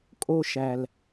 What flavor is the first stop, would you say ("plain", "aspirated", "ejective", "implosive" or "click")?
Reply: ejective